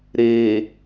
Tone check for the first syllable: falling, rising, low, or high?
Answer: low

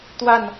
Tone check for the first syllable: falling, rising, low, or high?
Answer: falling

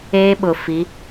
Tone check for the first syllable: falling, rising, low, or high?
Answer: high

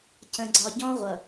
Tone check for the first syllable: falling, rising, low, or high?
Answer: low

